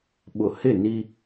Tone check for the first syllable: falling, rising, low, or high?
low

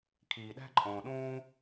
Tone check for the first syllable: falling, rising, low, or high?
low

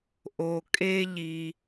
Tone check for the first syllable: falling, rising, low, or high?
low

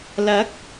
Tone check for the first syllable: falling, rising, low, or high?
rising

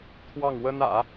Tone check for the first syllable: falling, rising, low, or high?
falling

